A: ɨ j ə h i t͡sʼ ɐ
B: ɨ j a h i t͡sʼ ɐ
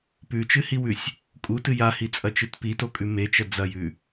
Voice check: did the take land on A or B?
B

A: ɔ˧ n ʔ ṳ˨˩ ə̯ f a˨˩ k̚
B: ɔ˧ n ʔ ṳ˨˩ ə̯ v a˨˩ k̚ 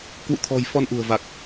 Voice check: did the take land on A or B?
B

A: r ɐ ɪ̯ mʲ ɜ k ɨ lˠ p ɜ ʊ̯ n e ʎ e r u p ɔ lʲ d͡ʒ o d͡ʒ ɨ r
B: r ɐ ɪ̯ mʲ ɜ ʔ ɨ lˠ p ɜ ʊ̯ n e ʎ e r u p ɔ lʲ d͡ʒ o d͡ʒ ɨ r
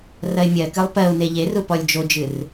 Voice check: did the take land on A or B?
A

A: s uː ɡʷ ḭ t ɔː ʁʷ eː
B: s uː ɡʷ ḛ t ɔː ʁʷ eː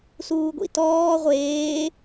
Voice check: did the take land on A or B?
A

